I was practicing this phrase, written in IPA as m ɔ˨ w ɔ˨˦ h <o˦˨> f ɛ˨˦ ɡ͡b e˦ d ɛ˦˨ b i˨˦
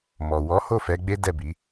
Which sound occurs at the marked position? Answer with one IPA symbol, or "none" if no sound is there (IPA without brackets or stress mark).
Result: o˦˨